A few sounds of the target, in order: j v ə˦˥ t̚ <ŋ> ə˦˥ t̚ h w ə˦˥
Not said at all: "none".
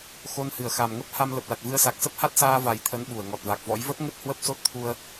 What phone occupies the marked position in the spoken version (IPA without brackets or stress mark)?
ŋ